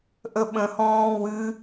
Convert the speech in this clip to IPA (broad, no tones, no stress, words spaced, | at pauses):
ʔəɓə̃hɔ̃ː wɨ